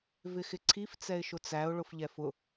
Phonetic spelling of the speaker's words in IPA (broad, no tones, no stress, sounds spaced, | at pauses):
v ɪ x ɪ ǀʰ i f t͡s ɛ ɪ̯ ʃ ʊ t͡s æ ʊ̯ ɭ ʊ f ʎ ɛ f ʊ